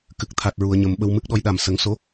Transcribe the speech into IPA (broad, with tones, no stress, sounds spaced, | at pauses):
k ɨ˨˩ k̚ t̪ʰ a˨˩ t̚ ɹ u˨˩˨ ə̯ ɲ ə˨˩˨ m ɓ ə˧ w m ɨ˦˥ k̚ ɗ ɔ˧˥ j ɗ a˨˩ m s ə˨˩˦ ŋ s o˧˥